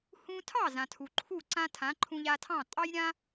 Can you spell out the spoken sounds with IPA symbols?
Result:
h ũ˧ tʰ ɑ˥˩ z ã˩ tʰ u˩ ǃʰ u˥˩ ǀ ã˥ tʰ ã˩˥ ǃʰ ũ˧ ʎ a˧ tʰ ɑ̃˥˩ tʼ ɑ˥ j ɾʲ ã˥

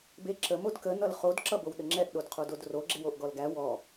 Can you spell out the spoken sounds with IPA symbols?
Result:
b e ǁ ə m o d k ə n ʌ l χ o d ǁ ʌ b o w ɗ ə ŋ͡ǁ ɛ ʔ ɗ o d qʰ o d o d r o ɡ͡ǁ e w o ʔ ɡ ɔ l ɡ æ w ɔ

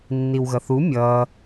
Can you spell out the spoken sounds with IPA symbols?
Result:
nː i w ɣ ʌ θ u mʲ ʌ

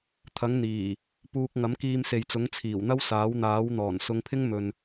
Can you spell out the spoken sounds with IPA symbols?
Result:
t̪ʰ ɐ˨˥ ŋ n̪ iː˨˩ | p uː˥ k̚ ŋ ɐ˨˥ m k iː˧ m s e˨ j t͡s ʊ˨˥ ŋ t͡sʰ iː˨˩ w n̪ ɐ˥ w s aː˨˥ w n̪ aː˨˥ w n̪ ɔː˨˩ n s ʊ˨˧ ŋ pʰ ɪ˥ ŋ m ɵ˨ n

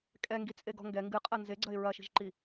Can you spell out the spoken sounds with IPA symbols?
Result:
kʼ ɛ ŋ ɡ i t͡sʼ e ɡ ɔ̤ ŋ ɡ ɛ ŋ ɡ ɨ qʼ ɐ n z e ɡ͡ǀ ɐ ɪ̯ ɹ ɐ ʃ i̤ ʒ ǃ i

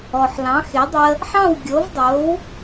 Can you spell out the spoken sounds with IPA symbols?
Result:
ɔ˩ ħ l ɑ̃˩˥ x e˩˥ dˤ ə˧ | ħ ɑ̃˥˩ w ɡʲ o˩˥ v dˤ o˩˥ w

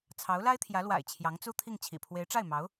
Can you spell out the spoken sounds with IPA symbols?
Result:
t͡sʰ ɑ˧˥ ʊ̯ l a˥ ɪ̯ t̪ʰ j ä˧˥ l w a̰˨˩ ɪ̯ t͡ɕʰ j ɑ˧˥ ŋ t͡s u˥ t̪ʰ i˥˩ ŋ t͡ɕʰ ḭ˨˩ pʰ w e˧˥ ɪ̯ ʈ͡ʂ a˥˩ ɪ̯ m ɑ˧˥ ʊ̯

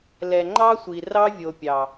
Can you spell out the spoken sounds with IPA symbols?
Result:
l ɛ˨ ŋ͡ǃ ɑ˦ sʷ i˨ r ɑ˦ vʲ o˨ pʲ ɑ˨

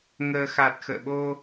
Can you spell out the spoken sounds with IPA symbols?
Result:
ŋ əː˧ x a˨˩ t̚ x ə̰ː˧˨ ɓ o˧

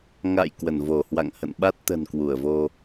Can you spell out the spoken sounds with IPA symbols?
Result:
ŋ a̰˧˨ j k w ə˧˩ n v o˧˩ h w a̰˧˨ ŋ h ə̰˧˨ n ɓ a˦˥ t̚ t̪ ə̤˨˩ n k w u˧˩ ə̯ v o˧

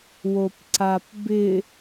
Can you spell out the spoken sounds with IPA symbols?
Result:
w o p ǀ a p b ɪ

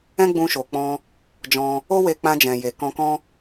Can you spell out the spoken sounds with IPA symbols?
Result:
ɛ̃˦ ɡ͡b ũ˧ ʃ o˨ k͡p ɔ̃˧ | d͡ʒ ɔ̃˧ | o˦ w e˧ k͡p ã˧ d͡ʒ ɛ̃˨ j e˨ k ɔ̃˧ k ɔ̃˦

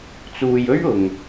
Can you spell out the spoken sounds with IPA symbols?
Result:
t͡s uː˨ j ɵ˥ ɥ ʊ˨ ŋ

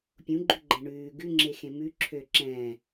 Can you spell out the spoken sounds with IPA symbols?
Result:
pʲ ũ ɡ͡ǃ ʉ ɡ͡ǃ ɛ̃ ɳ ʉː ɡ ʉ ŋ͡ǁ e x ẽ m ʉ ǁʰ ø ǁ ɛ̃ː

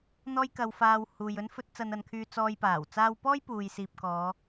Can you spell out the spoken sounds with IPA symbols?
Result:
n̪ ɔː˥ j k ɐ˧ w f aː˧ w h uː˨ j ɵ˥ n f ɵ˥ t̚ t͡s ɐ˧ n ɐ˨˧ n kʰ yː˧ t͡s ɔː˧ j p aː˨˩ w t͡s aː˥ w p ɔː˥ j p uː˨ j s iː˨ p̚ k ɔː˨˧

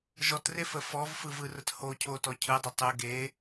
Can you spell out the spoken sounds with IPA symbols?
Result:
ʒ ɔ t r e f ə f ɔ v f ɯ v ɯ r ə t h o cʰ o t ɔ cʰ ɯ dˤ ə tˤ ɯ ɡ e

